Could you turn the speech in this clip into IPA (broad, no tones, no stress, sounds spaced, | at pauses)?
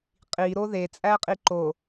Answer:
qʼ i ɾ o ð e t͡sʼ æ qʼ i ǃ o